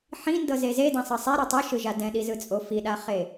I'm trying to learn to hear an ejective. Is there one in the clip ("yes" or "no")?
yes